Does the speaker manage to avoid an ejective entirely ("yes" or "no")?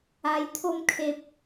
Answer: yes